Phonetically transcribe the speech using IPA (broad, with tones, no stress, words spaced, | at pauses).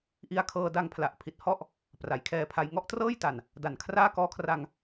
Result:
ʔi˧a̯kʰɤː˧da˧ŋpʰla˨˩ʔ pʰi˨˩t̚hɔ˥˩ʔ | pra˩˦jkʰɛː˧pʰa˧j ŋɔ˥˩ʔtrɤː˥˩jta˨˩n | da˨˩nkʰraː˥˩ kɔː˦˥kʰra˧ŋ